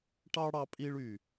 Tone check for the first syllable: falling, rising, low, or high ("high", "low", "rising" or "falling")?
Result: high